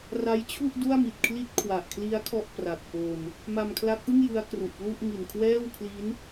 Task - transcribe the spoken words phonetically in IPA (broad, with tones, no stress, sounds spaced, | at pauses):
r a˦˥ j t͡ɕʰ u˥˩ ʔ d u˥˩ a̯ m i˨˩ t̚ kʰ l i˥˩ t̚ kʰ w a˨˩ ʔ kʰ l i˦˥ a̯ kʰ ɔ˥˩ ʔ p r a˨˩ k̚ p o˧ n | m a˧ m kʰ l a˦˥ k̚ ʔ ɯ˥˩ ŋ j ɯ˦˥ a̯ k r u˨˩ ʔ p l u˥˩ ʔ ŋ i˨˩ n kʰ w ɛː˥˩ w kʰ l i˦˥ n